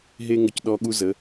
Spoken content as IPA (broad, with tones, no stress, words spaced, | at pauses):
ɦe˦ŋə˧c ɗɔ˧ ɠu˦zə˨˦